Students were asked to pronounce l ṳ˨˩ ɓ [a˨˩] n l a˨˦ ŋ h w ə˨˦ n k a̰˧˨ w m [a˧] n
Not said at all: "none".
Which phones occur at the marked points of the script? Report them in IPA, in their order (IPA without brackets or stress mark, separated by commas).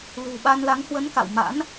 a˧, a̰˧˥